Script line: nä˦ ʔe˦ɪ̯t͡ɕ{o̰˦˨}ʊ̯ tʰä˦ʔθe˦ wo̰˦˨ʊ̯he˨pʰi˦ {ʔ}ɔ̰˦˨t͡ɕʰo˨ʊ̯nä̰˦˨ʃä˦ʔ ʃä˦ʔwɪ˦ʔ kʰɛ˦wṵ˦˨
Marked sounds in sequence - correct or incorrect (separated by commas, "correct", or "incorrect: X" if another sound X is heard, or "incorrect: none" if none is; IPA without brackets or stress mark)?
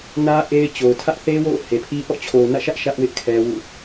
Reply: incorrect: o˨, correct